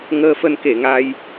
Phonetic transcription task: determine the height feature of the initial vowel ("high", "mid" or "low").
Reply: mid